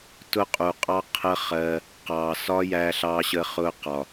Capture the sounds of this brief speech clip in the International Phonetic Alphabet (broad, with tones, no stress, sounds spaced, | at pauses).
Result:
t ʊ˦ qʼ u˨ qʼ ɑ˦ qʰ ə˦ χ ɜ˧ | q ɑ˨ s ɒ˦ j æ˧ ɬ ɑ˧ ɕ ə˧ χ ʊ˧ q ɒ˨